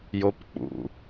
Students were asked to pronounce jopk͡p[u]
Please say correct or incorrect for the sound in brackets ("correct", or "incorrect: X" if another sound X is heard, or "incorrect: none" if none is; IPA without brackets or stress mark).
incorrect: ṵ